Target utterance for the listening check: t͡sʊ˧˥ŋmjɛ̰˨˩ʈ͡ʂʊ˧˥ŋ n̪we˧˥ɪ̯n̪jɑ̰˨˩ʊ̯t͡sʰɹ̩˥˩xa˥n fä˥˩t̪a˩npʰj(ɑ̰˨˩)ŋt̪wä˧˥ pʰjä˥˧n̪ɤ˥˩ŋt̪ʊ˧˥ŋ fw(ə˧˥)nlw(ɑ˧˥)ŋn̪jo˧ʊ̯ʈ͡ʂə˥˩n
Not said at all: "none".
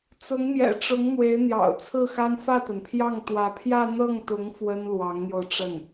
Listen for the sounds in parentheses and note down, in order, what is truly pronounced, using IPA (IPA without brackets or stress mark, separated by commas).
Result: ɑ˥˩, ə˥, ɑ˧˥